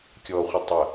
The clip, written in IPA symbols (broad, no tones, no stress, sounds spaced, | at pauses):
kʲ ɔ χʷ ɐ tˤ ə